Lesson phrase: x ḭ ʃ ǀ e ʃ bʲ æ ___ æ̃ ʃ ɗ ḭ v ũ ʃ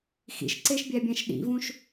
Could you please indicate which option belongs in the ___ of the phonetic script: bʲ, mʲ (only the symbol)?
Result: bʲ